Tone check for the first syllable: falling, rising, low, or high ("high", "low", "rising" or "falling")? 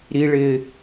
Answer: high